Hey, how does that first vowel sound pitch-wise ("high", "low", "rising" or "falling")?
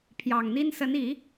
low